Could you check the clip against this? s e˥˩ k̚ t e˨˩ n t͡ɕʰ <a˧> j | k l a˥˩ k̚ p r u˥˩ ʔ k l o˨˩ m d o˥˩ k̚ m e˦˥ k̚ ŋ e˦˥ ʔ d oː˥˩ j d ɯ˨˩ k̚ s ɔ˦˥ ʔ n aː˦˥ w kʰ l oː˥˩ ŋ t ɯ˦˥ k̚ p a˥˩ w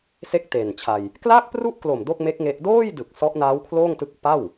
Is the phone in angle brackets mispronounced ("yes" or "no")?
no